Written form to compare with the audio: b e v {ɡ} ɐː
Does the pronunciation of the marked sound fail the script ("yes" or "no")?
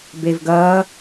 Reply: no